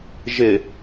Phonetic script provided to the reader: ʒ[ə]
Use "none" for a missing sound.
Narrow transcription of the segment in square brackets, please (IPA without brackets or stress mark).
ɪ